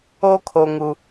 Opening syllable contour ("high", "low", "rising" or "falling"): high